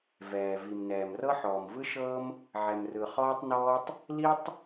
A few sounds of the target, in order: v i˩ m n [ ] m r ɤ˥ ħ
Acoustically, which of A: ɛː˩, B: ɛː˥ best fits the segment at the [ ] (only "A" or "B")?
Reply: A